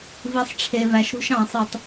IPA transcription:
vi˨sˤʈ͡ʂʰe˨væ˨ʃɾṳ˧ʃ ɑ̃˨sˤɯ˨tˤ

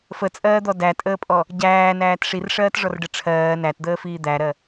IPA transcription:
fət͡sʼɜːd̪ɔ dætʼəːpʼɔ | ɟæːnæːt ʂirʂɜːtʐɔrɖə ʈ͡ʂʰɜː nætd̪əːfiː d̪æɾɜ

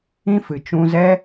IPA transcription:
ĩ˧fɨ˨ t͡ʃũ˧zɛ˦

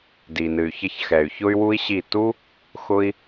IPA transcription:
di˨nɨ˨y̯çʌ˧çxɛ˨y̯ çʊ˦y̯wu˦i̯ɕi˦˨ tu˦ | xʊ˦i̯

